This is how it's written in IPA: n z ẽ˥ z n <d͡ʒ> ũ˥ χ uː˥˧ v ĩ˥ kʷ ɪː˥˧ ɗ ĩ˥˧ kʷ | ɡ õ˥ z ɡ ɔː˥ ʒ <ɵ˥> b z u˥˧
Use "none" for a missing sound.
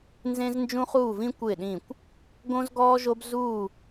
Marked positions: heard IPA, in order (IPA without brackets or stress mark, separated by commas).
d͡ʒ, o˥